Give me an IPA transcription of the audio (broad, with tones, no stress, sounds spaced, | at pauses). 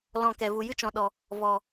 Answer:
l ɔ̃˧ k ɛ˨ v u˨ j ɨ˦ t͡ʃ ɔ̃˨ ɗ ɔ˨ | v ɔ˨